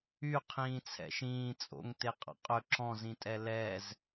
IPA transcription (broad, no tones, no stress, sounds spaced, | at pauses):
y qʰ ĩː t͡sʰ ɛ̰ ʃ ĩː t͡sʼ o̰ ŋ t e qʼ ɑ̰ qʼ ɵ ǁ ɔ̃ z ĩ tʼ ɛ l ɛ z